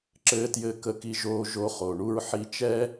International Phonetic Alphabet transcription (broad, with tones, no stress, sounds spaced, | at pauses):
ǁ ɘː˧ t j ɘ˧ k ə˧ k i˧ ʒ oː˧ ʒ o˧ χ o˩ ɳ u˧ ɹ ħ i˧ t͡ʃ ɛ˥